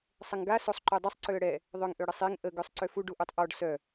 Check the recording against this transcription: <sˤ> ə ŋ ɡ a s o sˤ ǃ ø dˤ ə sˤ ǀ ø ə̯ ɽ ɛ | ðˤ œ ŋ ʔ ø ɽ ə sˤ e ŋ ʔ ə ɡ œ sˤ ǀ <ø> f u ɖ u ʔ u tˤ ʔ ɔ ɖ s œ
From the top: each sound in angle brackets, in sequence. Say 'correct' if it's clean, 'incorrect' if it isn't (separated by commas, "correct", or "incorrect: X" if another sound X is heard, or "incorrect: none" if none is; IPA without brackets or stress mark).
correct, correct